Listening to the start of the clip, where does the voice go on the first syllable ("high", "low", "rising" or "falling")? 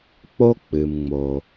high